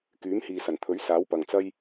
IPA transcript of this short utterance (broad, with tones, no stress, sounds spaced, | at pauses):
k yː˨˥ m h iː˨ s ɐ˨˩ n t̪ʰ ɵ˨˥ ɥ s aː˨˥ w p ɐ˨ ŋ t͡s ɐ˥ j